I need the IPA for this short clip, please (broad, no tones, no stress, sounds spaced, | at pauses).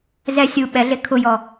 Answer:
z ɛ sʲ u ɓ ɛ ɮ e kʰ ʊ j ɔ